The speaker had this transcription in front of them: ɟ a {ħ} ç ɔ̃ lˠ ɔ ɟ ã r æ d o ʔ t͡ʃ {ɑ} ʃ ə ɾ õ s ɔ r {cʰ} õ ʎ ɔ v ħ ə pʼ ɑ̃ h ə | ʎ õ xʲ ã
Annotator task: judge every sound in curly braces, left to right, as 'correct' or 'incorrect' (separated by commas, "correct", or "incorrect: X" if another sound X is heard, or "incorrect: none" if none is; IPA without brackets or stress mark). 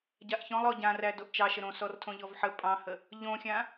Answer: incorrect: ʔ, correct, incorrect: tʰ